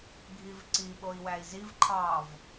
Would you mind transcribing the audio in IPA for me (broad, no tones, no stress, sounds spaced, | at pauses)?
ɡʱ i v ǀ i ɓ o i̯ w æ i̯ z i v ǃʰ ɑ v